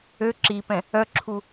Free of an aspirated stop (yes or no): no